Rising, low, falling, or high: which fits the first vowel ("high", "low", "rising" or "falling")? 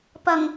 low